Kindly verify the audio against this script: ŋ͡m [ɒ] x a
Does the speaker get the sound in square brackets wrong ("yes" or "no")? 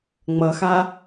yes